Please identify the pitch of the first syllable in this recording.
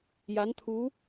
rising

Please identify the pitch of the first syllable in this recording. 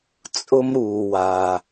high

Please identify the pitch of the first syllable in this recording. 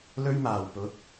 high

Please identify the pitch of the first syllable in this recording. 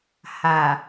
low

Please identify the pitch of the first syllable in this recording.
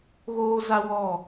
high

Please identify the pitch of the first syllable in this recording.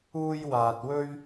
high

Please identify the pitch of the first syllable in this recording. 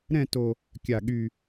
falling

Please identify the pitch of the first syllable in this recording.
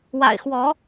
low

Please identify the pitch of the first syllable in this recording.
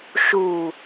low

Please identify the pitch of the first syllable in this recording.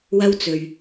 high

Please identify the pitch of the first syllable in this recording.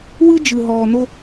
high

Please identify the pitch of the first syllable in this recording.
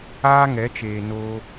high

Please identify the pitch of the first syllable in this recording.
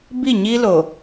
falling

